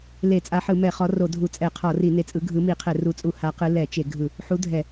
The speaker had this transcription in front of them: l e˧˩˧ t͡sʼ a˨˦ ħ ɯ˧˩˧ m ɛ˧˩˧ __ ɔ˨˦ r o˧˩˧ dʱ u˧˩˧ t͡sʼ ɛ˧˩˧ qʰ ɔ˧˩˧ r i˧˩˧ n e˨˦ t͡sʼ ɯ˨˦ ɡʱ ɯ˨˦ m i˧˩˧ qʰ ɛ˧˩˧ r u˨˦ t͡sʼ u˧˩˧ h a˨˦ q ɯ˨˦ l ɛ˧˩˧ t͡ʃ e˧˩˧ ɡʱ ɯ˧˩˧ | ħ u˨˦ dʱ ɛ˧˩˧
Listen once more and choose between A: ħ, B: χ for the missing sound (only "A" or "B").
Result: B